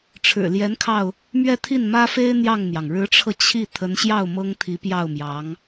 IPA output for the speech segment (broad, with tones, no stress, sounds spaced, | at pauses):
ʈ͡ʂʰ ɻ̩˨˩ l j ɛ˧˥ n kʰ ɑ˧ ʊ̯ | m ɥ ɛ˥˧ t̪ʰ i˥˩ n m ä˥ f e˥ ɪ̯ n̪ j ɑ˥˩ ŋ n̪ j ɑ˩ ŋ ɻ ɻ̩˧˥ ʈ͡ʂʰ ɤ˧ t͡ɕʰ i˥˩ t̪ʰ ə˧˥ n ɕ j ɑ˥˩ ʊ̯ m ɤ˥ ŋ t̪ʰ i˧˥ p j ɑ˥˩ ʊ̯ m j ɑ˧˥ ŋ